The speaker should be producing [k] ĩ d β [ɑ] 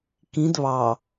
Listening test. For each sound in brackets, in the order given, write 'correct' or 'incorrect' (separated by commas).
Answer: correct, correct